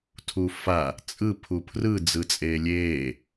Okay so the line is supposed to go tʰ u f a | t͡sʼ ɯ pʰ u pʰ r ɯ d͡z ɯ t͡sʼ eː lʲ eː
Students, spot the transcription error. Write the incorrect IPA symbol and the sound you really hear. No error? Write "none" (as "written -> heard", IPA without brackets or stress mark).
none